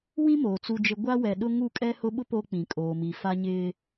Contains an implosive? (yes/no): yes